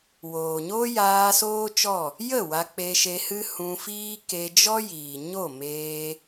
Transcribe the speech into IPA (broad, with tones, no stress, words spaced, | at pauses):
woː˨ɲo˦jaː˧ soː˦t͡ʃɔ˦˨ | jə˦˨ wa˧k͡pe˧ʃe˧hɨ˦ hũ˧fiː˦ke˧ d͡ʒɔ˦jiː˨ ɲo˦˨meː˧